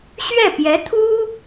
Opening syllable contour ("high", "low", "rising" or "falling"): falling